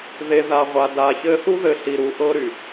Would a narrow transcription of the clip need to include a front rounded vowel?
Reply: yes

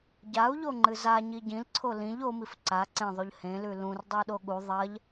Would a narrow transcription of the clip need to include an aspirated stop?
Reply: yes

